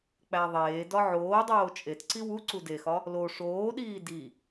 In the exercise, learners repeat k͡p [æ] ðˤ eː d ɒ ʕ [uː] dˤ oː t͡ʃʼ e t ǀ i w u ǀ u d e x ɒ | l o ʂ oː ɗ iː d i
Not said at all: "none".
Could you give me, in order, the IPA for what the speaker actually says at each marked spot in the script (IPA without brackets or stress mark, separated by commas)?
æ, oː